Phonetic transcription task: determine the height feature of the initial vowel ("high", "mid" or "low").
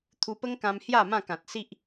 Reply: high